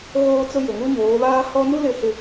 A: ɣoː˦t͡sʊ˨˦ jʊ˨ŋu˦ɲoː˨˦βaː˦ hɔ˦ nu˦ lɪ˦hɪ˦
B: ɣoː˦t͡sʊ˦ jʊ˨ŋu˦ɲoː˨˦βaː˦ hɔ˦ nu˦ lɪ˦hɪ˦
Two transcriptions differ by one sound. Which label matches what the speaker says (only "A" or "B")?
B